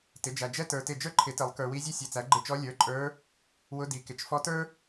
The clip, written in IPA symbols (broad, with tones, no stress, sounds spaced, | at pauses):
t ɪ˩˥ d͡ʒ æ˨ d͡ʒ ɛ˥ t ə˞˨ t ɪ˦˨ d͡ʒ ə˞˥ ǃʰ ɪ˨˩˦ t ɪ˨˩˦ lˠ k ə˞˨ w i˧˥ zʲ ɛ˥ sʲ ɛ˨ t͡s æ˩˥ ɡ͡ǃ ɪ˦˨ t͡ʃ ɔ˧˥ lʲ ə˞˩˥ ǃʼ ə˞˧˥ | w ʊ˧˥ d i˩˥ k ɪ˩˥ t͡ʃ f ɔ˧˥ t ə˞˥